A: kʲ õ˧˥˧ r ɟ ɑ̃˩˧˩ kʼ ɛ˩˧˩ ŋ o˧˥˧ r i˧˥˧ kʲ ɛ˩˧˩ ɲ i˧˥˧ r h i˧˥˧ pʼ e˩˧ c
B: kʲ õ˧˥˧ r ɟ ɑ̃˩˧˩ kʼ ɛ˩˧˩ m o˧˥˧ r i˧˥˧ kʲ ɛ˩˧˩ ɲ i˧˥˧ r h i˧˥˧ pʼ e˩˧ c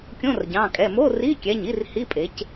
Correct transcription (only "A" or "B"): B